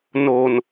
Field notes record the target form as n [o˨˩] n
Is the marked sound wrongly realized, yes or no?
no